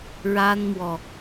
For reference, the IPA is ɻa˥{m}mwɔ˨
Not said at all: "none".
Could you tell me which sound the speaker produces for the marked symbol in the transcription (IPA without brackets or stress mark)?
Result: n